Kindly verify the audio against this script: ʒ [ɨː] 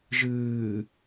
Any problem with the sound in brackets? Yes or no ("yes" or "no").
no